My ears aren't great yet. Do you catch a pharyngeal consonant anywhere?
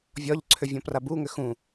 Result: no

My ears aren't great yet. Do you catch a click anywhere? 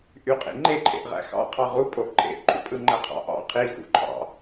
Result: yes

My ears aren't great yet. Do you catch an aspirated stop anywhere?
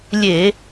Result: no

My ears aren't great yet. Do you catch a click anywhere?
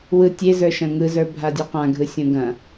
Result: no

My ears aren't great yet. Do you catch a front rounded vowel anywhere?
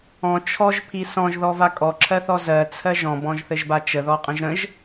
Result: no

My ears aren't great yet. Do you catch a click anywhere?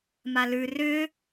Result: no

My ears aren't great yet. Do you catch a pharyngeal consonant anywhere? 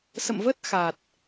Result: no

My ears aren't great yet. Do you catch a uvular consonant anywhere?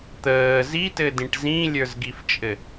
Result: no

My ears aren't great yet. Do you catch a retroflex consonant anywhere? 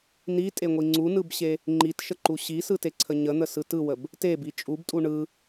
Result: yes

